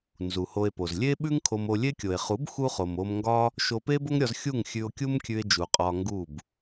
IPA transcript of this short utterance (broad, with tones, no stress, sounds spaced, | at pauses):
n z u˨ h o˧ e̯ p o˨ z lʲ e˦ ɓ ʉ˦ ŋ kʰ o˧ m o˧ lʲ e˦ kʲ o˨ e̯ χ u˨˦ b x u˧ χ o˨ m o˧ m ŋ ɡ ɒ˦ | ʃ o˧ p e˦ b o˦ ŋ ɾʲ ɒ˧ z xʲ u˦˨ ŋ xʲ ʉ˧ o̯ kʲ u˦ m kʲ ʉ˧ e̯ d͡ʒ u˨ qʼ ɒ˧ ŋ ɡ u˦˨ b